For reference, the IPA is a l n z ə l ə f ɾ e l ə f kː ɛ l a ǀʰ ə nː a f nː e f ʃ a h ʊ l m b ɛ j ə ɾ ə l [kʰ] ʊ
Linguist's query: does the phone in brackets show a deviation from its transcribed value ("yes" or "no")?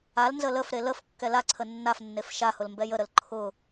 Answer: yes